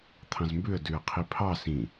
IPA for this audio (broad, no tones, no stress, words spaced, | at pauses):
t̪ʰɑ̃zmbʉə̯ dʉə̯qʰipʰɑ sĩ